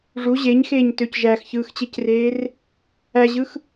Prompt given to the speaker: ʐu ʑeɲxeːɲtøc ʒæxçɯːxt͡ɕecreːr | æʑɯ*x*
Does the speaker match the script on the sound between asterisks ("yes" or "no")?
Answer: yes